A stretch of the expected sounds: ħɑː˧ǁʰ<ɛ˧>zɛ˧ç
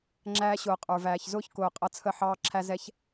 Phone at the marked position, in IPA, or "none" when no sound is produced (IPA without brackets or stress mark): æ˧